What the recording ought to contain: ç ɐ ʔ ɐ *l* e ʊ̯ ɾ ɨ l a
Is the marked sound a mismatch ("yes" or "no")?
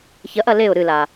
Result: no